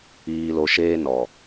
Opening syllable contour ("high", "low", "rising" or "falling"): low